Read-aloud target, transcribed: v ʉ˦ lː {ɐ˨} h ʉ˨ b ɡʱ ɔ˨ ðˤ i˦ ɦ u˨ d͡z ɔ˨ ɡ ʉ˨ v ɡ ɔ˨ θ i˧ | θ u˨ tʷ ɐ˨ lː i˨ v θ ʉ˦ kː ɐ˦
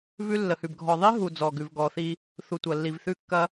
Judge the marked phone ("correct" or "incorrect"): incorrect